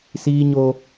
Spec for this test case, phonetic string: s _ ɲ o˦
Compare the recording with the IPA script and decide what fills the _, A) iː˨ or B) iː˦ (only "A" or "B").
B